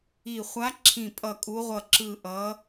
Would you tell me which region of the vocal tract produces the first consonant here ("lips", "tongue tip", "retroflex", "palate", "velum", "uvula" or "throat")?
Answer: uvula